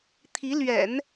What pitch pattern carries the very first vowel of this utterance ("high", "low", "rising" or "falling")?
rising